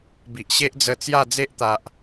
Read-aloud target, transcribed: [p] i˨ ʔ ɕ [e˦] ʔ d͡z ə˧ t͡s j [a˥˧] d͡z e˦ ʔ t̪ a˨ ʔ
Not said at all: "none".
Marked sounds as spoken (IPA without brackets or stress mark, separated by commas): b, e˦, a˥˧